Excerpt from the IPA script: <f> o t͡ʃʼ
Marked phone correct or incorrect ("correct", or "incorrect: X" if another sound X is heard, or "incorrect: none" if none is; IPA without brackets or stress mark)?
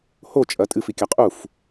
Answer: incorrect: h